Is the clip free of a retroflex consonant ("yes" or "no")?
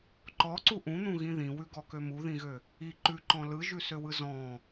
yes